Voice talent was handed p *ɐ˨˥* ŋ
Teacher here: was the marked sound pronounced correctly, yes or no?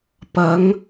yes